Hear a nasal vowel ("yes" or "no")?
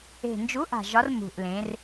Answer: yes